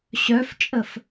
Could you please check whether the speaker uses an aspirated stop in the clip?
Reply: no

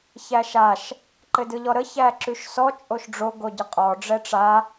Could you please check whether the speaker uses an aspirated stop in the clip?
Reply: no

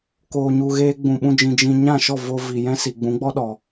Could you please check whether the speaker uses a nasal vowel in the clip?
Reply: yes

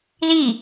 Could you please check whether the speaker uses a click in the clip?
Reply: no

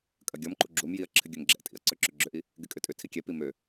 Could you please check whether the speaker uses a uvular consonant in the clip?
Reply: no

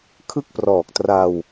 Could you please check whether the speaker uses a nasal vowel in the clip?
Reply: no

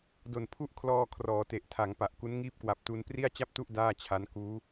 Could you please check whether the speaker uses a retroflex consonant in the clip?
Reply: no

